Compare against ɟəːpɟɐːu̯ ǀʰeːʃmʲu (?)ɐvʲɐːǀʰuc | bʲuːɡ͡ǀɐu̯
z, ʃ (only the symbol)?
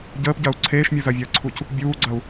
z